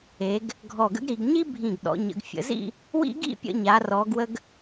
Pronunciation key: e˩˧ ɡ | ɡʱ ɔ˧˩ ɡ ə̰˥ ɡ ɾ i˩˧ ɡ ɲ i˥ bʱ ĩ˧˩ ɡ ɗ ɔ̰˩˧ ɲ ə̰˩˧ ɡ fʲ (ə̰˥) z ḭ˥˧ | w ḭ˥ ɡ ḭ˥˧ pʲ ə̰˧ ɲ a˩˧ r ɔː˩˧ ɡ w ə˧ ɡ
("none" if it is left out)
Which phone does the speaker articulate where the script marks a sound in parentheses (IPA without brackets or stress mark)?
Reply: ə̰˩˧